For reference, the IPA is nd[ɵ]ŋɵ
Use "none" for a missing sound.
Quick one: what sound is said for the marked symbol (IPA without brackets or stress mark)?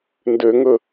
ø